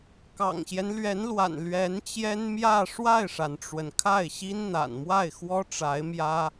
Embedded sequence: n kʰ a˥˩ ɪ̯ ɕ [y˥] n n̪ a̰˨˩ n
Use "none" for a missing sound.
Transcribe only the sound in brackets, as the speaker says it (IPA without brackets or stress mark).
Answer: i˥